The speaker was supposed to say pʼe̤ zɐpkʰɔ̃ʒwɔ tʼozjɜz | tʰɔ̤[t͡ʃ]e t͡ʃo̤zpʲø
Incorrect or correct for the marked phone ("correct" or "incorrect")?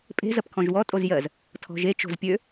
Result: incorrect